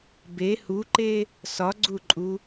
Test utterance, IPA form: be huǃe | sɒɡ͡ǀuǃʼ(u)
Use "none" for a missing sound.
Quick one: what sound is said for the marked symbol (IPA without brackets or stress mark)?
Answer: u